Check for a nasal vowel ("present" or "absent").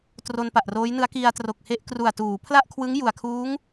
absent